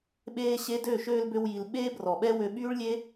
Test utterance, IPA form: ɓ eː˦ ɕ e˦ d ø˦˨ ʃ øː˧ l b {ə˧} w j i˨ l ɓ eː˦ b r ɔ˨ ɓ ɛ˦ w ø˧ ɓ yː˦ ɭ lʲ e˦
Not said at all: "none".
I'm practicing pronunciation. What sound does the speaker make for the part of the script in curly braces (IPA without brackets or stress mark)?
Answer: ø˧